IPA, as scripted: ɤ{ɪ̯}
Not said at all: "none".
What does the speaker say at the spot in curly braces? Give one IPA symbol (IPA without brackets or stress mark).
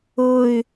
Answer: ɪ̯